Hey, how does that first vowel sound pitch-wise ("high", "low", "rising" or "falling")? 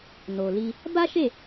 low